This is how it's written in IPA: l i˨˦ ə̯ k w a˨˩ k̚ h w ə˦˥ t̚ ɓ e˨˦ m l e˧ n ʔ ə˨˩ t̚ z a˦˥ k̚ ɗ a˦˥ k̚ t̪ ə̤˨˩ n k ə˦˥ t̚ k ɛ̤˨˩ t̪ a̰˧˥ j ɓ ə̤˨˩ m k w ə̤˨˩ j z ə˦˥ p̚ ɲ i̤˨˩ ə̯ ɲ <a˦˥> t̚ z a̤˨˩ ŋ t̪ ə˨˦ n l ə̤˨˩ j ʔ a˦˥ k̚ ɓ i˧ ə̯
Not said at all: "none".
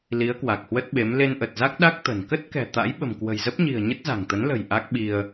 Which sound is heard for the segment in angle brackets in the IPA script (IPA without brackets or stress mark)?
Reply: ə˦˥